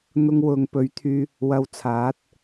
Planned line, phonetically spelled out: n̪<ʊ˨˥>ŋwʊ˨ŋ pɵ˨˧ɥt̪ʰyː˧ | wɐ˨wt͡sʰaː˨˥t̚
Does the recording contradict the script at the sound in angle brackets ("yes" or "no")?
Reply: yes